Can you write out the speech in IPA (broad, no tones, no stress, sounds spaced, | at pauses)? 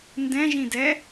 n d ɛ̃ ʒ ĩ d ɛ